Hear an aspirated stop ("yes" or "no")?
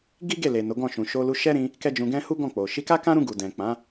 no